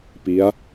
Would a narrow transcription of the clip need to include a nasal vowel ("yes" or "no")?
no